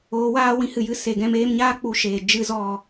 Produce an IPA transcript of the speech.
oː˨˦ w aː˦ w ĩ˨˦ h ɨ˨ j ɨ˨˦ s e˨ ɡ ɛ̃˧ m eː˧ m ɲ aː˦ k͡p u˧ ʃ eː˨ d͡ʒ ɨ˦ z ɔ˦˨

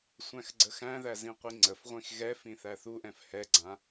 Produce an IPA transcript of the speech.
sʷ æ̃ x ɡ͡ǀ ə x æ̃ ð æ z ĩ qʷ i ŋ͡ǀ ə f ʁʷ ĩ x ɣ ɛ f ĩ θ æ θ u ʔ ɛ̃ f h ɛ ɡ͡ǀ ã

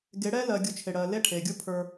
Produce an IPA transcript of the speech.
ɡ e˨˦ ɽ ɛ˦ l ɜ˨ ɡʲ u˨ t͡ʃʰ e˨ ɽ ɜ˨ l e˦ ʈʰ e˨ ɡʲ u˦ pʰ ə˞˦

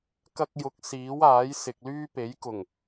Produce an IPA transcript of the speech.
k ɐ˧ k̚ j ʊ˨˥ k̚ s iː˨˥ w aː˨˥ j s ɪ˨ k̚ l yː˥ p e˨˥ j k ʊ˨˩ ŋ

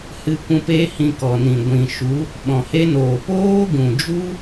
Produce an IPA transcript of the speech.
h ɨ˧ kʷ ũ˧ p e˦ h ĩ˧ k ɔ˨ n ĩ˨ ɡʷ ĩ˨ ʃ u˨˦ | ɓ ɔ̃˨ h e˦ n oː˨ p oː˦ ɡ ũ˨ d͡ʒ u˦

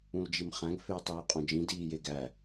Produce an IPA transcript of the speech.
ũ l d͡ʒ i m χ æ̃ ɡ f eː tˤ iː qʼ õ d͡ʒ ĩ d iː j e ɡ æ

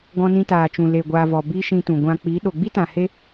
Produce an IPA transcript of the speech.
ɡ ɔ̃˧ n ĩ˧ t aː˨ t͡ʃ ũ˨ l e˨ ɡʷ aː˨ v ɔ˨ b i˦ ʃ ĩ˧ t ũ˨ ɡʷ ã˨ k͡p i˨˦ ɗ o˨ ɡ͡b i˦ t ã˨ h e˧

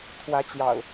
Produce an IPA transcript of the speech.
t̪ʰ w ä˨˦ t͡ɕ j ɑ̰˨˩ ʊ̯

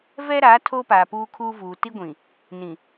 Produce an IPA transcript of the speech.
v ɛ˦ ɾ aː˨˦ tʰ oː˦ p aː˨ p uː˦ kʰ uː˦ v uː˨ t i˦ ɡʷ ĩ˨ | n ĩ˨

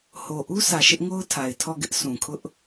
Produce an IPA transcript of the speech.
h o˨ ʔ u˦ s ä˨ ʃ ɪ˦ ʔ ŋ o˦ ʊ̯ tʰ a˨ ɪ̯ tʰ ɔ˦˨ ɡ ɪ˦ ʔ sʰ ũ˨ kʰ ʊ˦ ʔ

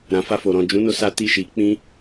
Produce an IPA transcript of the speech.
ɾ ã˨ f a˧ f o˨ ɾ ɔ̃˨ d͡ʒ ũ˨˦ n o˧ s a˧ t i˧ ʃ i˧ k͡p ĩ˦

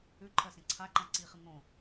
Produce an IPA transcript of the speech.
ʉ ǃʰ ɜ s ẽ ǀʰ a ǃ ã ǀ i χ ɨ ŋ õ

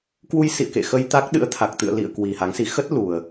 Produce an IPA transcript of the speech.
k w u˧ j s ḭ˧˨ ə̯ k ḛ˧˨ x ə˧ j t̪ a˦˥ k̚ ɗ ɨ̰˧˥ ə̯ t̪ʰ a˨˩ k̚ t̪ ɨ̰˧˨ ə̯ l ḭ˧˨ ə̯ k w i˨˩ h a˨˦ ŋ s i˨˦ x ə˦˥ t̚ l u˨˩ ə̯

